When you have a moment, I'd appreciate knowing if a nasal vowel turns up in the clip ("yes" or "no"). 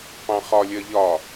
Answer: yes